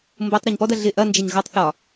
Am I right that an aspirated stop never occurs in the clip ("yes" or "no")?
yes